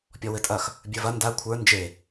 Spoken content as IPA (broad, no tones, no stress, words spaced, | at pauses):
pʲɔwɘtʼɐx | bʲə˞vɐ nda kʷʰə˞ nd͡ʒe